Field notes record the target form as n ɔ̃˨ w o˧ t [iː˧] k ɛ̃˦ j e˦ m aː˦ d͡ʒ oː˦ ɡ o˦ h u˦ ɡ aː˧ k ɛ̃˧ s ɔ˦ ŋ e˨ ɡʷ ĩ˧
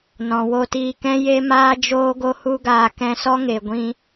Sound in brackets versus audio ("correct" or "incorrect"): correct